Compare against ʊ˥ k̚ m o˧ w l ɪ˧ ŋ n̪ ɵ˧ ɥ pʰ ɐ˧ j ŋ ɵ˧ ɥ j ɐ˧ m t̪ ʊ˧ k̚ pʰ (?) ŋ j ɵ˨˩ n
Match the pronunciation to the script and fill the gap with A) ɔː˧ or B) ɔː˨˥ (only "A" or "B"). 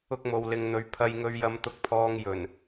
A